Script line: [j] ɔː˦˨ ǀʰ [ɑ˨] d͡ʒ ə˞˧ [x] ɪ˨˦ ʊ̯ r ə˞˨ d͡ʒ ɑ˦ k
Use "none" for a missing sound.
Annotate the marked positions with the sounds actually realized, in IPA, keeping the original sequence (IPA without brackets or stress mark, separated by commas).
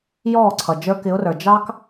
j, ʌ˨, k